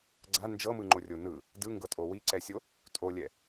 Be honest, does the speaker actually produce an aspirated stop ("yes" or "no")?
no